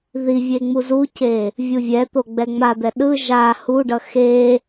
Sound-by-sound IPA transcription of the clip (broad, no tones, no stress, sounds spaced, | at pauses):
ð i vʲ e ŋ͡m u z u c e | vʲ u vʲ ɛ t̪ o ɡ͡b ɛ ŋ͡m a d̪ ɛ ɗ ɯ ʒ a h u ɖ ʌ x e